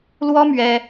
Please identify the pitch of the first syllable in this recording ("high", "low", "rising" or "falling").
high